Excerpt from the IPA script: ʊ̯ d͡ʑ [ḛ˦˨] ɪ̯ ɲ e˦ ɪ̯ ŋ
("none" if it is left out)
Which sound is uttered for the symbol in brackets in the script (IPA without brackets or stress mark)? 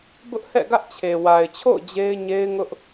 e˦